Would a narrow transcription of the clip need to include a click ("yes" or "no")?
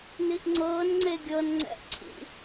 yes